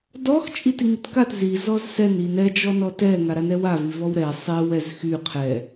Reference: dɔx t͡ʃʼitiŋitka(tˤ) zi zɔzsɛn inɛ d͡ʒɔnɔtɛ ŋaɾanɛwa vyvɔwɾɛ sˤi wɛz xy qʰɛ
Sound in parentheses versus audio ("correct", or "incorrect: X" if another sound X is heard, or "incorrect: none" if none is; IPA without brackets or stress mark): incorrect: t